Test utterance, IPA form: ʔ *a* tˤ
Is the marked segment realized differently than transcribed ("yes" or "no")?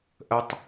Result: yes